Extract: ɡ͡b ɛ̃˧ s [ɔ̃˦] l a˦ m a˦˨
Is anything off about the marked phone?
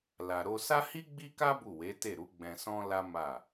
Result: no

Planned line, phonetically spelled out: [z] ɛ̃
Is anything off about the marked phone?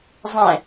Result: yes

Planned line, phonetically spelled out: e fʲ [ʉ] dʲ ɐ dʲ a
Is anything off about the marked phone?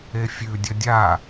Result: no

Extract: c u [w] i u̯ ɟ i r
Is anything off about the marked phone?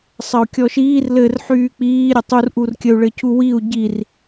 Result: no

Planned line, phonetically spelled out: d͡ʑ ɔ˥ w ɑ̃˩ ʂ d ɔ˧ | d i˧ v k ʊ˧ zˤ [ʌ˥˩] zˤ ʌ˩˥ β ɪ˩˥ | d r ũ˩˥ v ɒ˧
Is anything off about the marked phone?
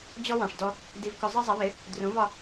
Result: yes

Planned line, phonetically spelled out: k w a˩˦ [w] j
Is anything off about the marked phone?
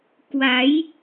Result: yes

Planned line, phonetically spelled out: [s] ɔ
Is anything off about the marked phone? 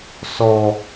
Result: no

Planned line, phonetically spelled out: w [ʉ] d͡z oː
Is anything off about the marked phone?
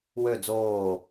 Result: yes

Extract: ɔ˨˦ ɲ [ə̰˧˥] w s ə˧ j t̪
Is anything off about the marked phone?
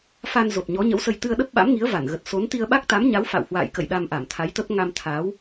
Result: no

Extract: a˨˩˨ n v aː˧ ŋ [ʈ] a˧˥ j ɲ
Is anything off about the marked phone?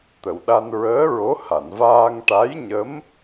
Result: no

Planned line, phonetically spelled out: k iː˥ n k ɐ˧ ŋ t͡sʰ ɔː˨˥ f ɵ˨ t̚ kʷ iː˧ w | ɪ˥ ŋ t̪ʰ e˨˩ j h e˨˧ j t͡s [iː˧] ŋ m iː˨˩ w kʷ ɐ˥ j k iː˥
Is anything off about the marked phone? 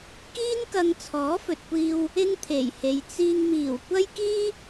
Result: no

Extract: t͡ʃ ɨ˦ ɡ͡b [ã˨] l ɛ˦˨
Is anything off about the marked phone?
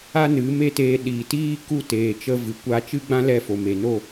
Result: yes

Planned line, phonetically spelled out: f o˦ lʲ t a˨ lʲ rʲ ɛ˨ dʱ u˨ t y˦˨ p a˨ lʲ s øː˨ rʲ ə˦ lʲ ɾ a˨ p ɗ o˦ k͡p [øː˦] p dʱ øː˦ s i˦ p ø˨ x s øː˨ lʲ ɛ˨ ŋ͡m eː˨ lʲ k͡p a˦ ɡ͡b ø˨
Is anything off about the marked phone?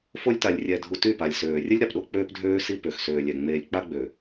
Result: no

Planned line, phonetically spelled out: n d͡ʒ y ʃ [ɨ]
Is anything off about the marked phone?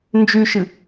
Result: no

